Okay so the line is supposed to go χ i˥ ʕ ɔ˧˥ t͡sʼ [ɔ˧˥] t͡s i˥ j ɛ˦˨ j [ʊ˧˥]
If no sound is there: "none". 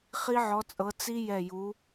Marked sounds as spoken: ɤ˧˥, u˧˥

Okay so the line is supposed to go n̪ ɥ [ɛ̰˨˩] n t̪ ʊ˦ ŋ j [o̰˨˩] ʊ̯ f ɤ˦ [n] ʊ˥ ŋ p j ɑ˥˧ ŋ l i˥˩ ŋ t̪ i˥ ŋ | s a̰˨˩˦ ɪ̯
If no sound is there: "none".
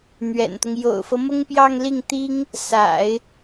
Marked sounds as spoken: ɛ̰˨˩, o̰˨˩, m

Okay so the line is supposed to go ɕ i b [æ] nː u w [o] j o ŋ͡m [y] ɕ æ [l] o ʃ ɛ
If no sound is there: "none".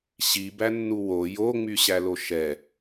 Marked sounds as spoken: æ, o, y, l

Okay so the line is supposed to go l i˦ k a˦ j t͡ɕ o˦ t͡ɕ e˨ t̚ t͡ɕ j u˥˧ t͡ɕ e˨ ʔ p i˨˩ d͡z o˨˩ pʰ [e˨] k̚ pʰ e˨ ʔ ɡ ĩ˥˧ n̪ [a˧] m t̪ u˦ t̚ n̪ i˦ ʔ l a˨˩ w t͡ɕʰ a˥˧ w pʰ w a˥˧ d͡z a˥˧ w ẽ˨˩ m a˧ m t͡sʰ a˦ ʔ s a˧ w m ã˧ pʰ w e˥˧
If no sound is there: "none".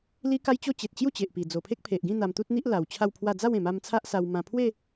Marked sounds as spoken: e˦, a˧

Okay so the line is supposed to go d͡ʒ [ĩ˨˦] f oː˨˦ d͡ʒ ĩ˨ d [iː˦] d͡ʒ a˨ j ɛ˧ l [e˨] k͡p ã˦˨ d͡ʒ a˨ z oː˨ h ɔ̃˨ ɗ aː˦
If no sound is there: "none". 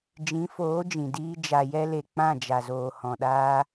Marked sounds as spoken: ĩ˨˦, iː˦, e˨

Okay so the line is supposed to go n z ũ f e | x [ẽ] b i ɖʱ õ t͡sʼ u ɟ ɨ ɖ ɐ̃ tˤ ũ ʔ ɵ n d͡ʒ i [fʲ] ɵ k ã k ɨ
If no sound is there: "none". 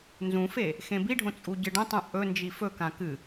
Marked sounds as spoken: ẽ, f

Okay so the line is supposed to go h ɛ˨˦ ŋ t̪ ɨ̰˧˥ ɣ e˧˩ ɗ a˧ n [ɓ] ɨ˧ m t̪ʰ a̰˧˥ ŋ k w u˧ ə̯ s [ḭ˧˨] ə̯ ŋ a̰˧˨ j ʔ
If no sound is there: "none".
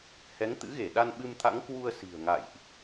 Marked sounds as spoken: ɓ, i̤˨˩

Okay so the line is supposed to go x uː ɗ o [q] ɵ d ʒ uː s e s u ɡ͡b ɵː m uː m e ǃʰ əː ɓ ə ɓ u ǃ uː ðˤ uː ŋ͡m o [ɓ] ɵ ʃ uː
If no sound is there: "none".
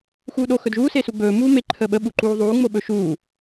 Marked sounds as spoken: x, ɓ

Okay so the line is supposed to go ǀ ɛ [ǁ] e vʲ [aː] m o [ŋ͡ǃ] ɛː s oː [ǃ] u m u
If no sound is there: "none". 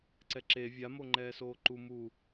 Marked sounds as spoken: ǁ, a, ŋ͡ǃ, ǃ

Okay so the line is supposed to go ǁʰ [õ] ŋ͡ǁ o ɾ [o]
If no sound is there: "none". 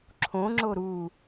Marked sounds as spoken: õ, u

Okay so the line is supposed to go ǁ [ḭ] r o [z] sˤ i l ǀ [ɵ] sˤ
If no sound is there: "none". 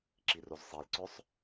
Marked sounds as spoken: i, z, ɵ

